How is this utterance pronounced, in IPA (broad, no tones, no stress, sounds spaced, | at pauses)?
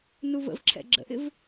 n u v ə̰ v ǁʰ ɛ̰ ɡ͡ǁ ə̰ ʔ ɪ v